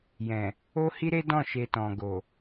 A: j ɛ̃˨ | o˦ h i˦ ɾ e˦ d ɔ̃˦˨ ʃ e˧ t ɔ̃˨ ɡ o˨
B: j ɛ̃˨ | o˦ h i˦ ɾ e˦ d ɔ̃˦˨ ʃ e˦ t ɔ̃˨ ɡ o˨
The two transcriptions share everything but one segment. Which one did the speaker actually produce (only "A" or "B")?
A